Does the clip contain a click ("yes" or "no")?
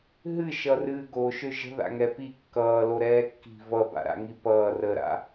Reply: no